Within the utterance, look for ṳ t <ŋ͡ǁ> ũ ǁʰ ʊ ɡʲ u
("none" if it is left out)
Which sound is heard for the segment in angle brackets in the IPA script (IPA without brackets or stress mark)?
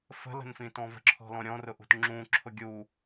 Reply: ŋ͡ǁ